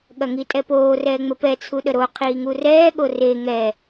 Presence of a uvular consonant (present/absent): present